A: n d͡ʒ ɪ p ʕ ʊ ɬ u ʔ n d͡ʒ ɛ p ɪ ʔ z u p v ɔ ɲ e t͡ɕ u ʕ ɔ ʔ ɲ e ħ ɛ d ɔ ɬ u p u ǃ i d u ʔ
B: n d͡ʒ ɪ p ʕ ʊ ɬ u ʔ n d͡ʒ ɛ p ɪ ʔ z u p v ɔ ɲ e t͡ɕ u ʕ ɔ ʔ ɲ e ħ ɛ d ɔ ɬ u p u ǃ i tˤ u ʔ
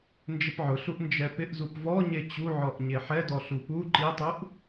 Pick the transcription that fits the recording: B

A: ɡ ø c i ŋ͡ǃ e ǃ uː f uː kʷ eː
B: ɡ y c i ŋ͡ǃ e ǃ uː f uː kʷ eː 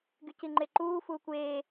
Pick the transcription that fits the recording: B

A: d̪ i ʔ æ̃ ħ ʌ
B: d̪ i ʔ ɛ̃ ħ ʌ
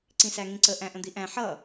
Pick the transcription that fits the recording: A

